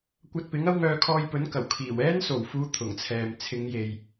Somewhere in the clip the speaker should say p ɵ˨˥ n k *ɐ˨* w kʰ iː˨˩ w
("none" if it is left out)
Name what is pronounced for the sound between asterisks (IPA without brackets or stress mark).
ɐ˨˩